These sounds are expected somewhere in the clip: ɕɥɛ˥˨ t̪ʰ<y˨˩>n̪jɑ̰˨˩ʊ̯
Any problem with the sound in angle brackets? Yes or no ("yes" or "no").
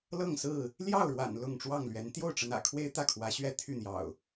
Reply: yes